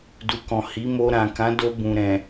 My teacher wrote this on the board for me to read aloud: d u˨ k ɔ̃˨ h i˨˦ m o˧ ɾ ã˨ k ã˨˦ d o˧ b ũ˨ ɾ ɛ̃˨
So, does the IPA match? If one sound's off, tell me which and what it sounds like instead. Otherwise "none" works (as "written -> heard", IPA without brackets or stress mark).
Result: none